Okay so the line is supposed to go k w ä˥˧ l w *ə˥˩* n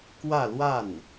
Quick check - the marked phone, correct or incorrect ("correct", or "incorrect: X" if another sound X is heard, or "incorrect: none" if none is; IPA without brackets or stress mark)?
incorrect: a˥˩